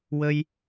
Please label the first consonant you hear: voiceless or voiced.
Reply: voiced